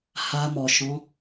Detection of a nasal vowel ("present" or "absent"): present